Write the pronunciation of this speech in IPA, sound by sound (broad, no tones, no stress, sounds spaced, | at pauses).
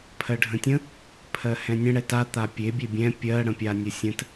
pʰ ɜ ɖʱ ə̃ tʲ ə̃ | pʰ ɜ h ɛ̃ nʲ ə̃ ɽ ɛ t a t̪ a pʲ e bʲ e bʲ ɛ̃ pʲ ɜ ɽ ə̃ pʲ a nʲ ə sʲ ə̃ t